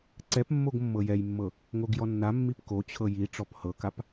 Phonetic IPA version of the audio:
ǀɛpmːoɡ mːɤjɛjmːɤ | ŋoɡjɔnːamːip kot͡ɕʰɤ ji ʈ͡ʂɔphɤkap

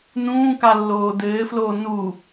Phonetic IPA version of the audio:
nũːkalːoː dɘːfloː nu

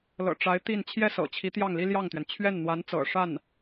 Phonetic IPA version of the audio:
lɤ̰˨˩ʈ͡ʂa˧˥ɪ̯ t̪i˥˧n t͡ɕʰjɛ˥˩sɤ̰˨˩ t͡ɕʰi˧˥ t̪jɑ˥˩ŋli˥ljɑ˥˩ŋt̪ɥɛ˩n t͡ɕʰɥɛ˥˩nn̪wa˧˥nt͡sɤ̰˨˩ ʂa˥˩n

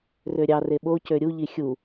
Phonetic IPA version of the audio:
røɾʲɑ reɓo cøɾʲu ʎixʲu

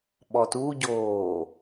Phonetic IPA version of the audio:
ɓɔtuɟoː

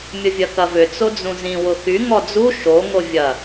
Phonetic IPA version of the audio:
mʲʊvʲɐkɐvʏ t͡sod͡zũzĩ wʊxy ŋɔd͡zu ʃo ŋovʲɐ

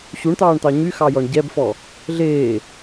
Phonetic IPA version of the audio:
ɕuɳt̪ɑːɳt̪ɑ ɲyxɑjɔɳ ɟɛbfɔ | ɮeː

